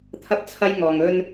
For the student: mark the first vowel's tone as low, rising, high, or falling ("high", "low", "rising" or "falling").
high